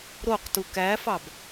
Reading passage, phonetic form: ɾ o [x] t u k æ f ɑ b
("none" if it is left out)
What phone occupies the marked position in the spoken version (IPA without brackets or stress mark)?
q